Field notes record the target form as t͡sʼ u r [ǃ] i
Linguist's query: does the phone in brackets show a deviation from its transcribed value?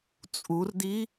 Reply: yes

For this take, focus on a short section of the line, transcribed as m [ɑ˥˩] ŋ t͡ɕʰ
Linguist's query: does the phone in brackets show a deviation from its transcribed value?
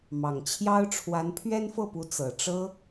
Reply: yes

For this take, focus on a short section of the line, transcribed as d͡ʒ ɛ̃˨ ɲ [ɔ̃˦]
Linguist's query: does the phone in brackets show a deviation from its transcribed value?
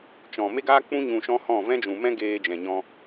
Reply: yes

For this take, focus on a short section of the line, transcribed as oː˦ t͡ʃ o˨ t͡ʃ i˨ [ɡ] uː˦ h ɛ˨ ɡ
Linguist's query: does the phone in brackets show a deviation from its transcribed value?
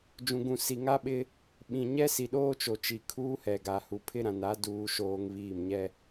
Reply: yes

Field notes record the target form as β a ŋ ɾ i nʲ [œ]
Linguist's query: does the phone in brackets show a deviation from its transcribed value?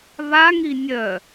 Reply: no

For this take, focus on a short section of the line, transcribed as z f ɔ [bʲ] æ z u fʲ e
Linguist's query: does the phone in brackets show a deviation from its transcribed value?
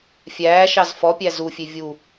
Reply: yes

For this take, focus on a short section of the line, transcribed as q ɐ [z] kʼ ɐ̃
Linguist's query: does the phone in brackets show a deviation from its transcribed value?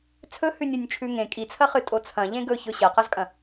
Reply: no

